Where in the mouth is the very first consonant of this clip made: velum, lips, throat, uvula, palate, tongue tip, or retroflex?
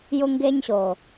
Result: palate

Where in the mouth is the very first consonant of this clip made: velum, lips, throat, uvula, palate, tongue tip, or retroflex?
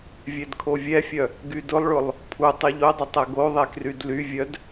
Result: lips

